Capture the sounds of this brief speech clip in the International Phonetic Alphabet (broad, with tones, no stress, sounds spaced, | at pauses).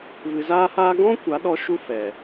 v ɨ˧ z aː˦ h aː˦ ɡ ɔ̃˦ kʷ a˨˦ ɗ ɔ˧ ʃ u˦ f ɛ˨